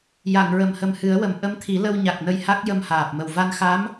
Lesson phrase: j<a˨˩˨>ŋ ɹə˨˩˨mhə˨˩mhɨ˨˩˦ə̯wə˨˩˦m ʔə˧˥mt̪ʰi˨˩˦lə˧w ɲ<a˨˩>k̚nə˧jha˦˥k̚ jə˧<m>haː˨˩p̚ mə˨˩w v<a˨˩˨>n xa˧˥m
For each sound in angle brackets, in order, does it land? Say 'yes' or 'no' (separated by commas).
yes, yes, yes, no